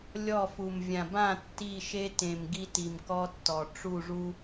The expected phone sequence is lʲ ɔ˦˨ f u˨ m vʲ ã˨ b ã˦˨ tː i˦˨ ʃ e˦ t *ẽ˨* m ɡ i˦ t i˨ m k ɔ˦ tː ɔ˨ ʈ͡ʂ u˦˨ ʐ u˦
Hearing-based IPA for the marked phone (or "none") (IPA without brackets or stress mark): ẽ˨